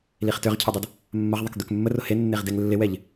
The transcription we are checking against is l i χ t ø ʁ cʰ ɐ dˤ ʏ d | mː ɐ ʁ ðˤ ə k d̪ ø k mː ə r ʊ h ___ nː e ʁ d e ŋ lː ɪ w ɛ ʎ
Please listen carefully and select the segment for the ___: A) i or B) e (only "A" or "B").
B